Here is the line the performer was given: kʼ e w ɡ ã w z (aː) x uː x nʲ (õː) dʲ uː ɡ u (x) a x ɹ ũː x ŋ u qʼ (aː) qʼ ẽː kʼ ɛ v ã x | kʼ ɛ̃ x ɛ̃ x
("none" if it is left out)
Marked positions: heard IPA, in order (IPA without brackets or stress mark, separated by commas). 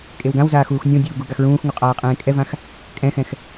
aː, õ, ɡ, aː